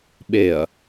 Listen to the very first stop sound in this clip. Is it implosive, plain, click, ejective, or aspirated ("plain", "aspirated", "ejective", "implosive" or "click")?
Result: implosive